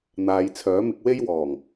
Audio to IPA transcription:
n̪aː˨˧jt͡sʰœː˨˥mɪ˧k̚ we˥jwɔː˨˩ŋ

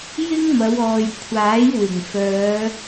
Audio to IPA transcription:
jɪ˥ŋmɐ˨˧wɔː˨j kʷʰaː˨˥jwɪ˨˩ŋ fœː˨˧

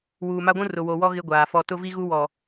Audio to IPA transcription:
wuː˨ma˦ɡʷũ˦ rʊ˨wo˨wɔ˦ ɣɪ˦ɡʷaː˨ fɔ˨tʊ˦vi˦ɣu˦ wɔ˨

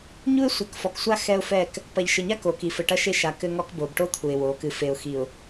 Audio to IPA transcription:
ɲu˦ɪ̯sʷɐ˨˦kfɔ˨ksʷa˦ xɛ˦ʊ̯ fɛ˦˨k | pɐ˨ʎʃɘ˨ɲa˦ ko˨ki˨ fɘ˨ʈɐ˦ʃe˦ʃa˨ kɘ˦ŋɔ˦kbo˨b ʈo˦t̪ʰu˨ɪ̯ wo˨˦ kɨ˨fe˨ʊ̯xi˨ʊ̯

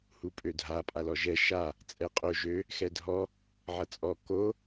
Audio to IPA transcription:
hupʼødʱa pʼalɔʒɛ ʃa | t͡sʼɛqʼo ʒø | xɛdʱɔ | ʕʌt͡sʼɔ ko

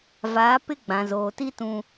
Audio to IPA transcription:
vaː˨˦pɪ˦ ɡ͡bã˨zoː˨ti˦ tũ˨

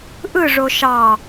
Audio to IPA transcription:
ʔɯ ʐoʃɑ

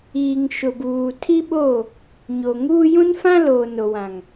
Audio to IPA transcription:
iː˨ŋ ʃʊ˨buː˨tʰi˦ɓo˦˨ | ɲo˨ŋuː˦ jũ˦nfã˦loː˨ no˨wã˨ŋ

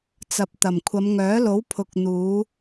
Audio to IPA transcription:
t͡sɐ˨p̚t̪ɐ˨˩m kʷʰɐ˨˧mŋœː˨˥lo˨˥w pʰʊ˨k̚n̪uː˨˧

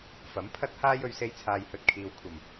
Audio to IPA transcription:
fɐ˨˥mpʰɐ˥t̚haː˥j ɵ˧ɥse˧jt͡sʰaː˨j hɵ˨t̚kʰiː˨w kʷʰɐ˨˩m

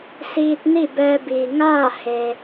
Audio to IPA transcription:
siː˧t̚ni˥˨bɛː˧biː˩ ŋaː˥˨ he˩

